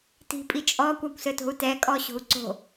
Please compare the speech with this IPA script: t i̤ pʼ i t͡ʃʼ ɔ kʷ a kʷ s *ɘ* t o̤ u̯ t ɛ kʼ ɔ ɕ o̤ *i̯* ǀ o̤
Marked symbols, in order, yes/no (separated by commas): yes, no